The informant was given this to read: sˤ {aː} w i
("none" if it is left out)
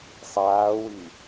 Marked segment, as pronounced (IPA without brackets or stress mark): aː